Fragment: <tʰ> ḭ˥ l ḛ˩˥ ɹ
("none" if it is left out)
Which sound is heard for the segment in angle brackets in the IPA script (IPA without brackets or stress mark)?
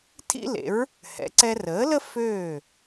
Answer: tʰ